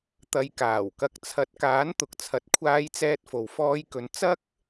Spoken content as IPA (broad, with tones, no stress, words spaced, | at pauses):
t̪ɐ˨jkaː˨˩wkɐ˨˥k̚t͡sʰɐ˨˥t̚ kaː˨˥nt̪ʊ˨k̚t͡sʰɐ˨t̚kʷʰaː˧j t͡sɛː˧t̚fo˨w fɔː˧jkɵ˨˧n t͡sɐ˥k̚